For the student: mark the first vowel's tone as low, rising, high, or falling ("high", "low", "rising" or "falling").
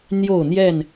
falling